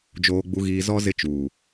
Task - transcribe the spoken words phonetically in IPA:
d͡ʒ oː˨ ɡ͡b u˨ ɣ iː˨ z ɔ˦ z ɪ˦˨ t͡ʃ uː˨

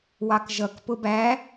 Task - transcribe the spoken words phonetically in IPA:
w ɑ k ʒ ʌ k p ʊ b æ

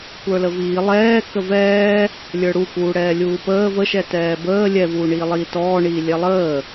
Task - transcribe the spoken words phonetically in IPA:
kʷ ə˞ l ə v iː lˠ ɛː k ə v ɛː | lʲ ə˞ ɽ u k uː ɽ ɛː lʲ uː p əː v ə ʃ ɛ t ɛː b əː lʲ ɛ v uː ɳ iː lˠ iː t ɔː ɳ iː lʲ ɛ lˠ əː

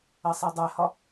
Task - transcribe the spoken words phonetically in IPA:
ɐ sˤ a dˤ ɛ h ɒ

